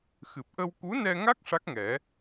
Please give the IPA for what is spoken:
xɨ˨˩p̚ʔə˧w ku˧˥nɛ˧ŋa˦˥k̚ ʂa˦˥k̚ŋɛ˨˩˦

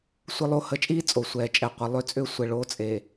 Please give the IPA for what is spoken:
sʷə˦lˠo˦ hə˨˦t͡ʃʼiː˦ t͡sʼo˨sʷɛː˨t͡ʃʼɛ˨qʷə˨ lˠʏ˦t͡sʼʏː˦ sʷɛ˨ɭo˨˦t͡sʼeː˨

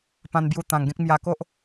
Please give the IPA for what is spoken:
pã˧nbju˧ t̪ã˧ŋɡẽ˦k̚ mja˧ko˦ʔ

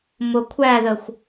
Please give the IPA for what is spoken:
mʊ kʷʰæðəxʷ

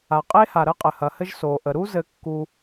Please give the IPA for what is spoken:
a˩ qʼe˥ha˩ɾə˥ qʼɘ˩hɐ˩hɘ˥ʒ so˩ʔə˩ɾu˥ zɘ˥kːu˥

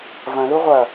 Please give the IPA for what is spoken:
vɐ̃ luʁʷɐ

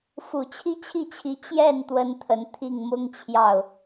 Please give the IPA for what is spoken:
fu˨˩t͡ɕʰi˥t͡ɕʰi˥˩t͡ɕʰi˧˥ t͡ɕjɛ˥˩n t̪wə˥nt̪ʰə˧˥n t̪ʰi˥˩ŋ mʊ˥ŋt͡ɕʰjɑ˥˩ʊ̯

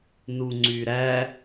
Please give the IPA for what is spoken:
nuŋ͡ǀyɾæ

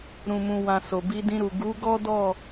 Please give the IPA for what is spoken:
ɾũ˨mũ˨wã˨ so˨ bi˨˦dĩ˧ɾu˨ ɡu˨˦ ɡɔ˦dɔ˦˨

